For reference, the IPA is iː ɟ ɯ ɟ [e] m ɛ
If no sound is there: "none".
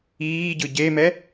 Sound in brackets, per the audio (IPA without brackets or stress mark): e